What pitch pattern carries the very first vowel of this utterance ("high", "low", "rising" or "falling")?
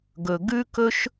low